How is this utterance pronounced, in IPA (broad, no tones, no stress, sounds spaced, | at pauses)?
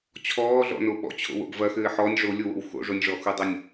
t͡ɕʰ ɔː ɮ ɔ̰ n o ɓ ɔ̰ t͡ɕʰ o̰ w o̰ ɡ v ɐ x ɘː ħ ɔ nʲ ʐ o lʲ o w o̰ w x o̰ ʐ o nʲ ʐ ɔ x u dˤ o nʲ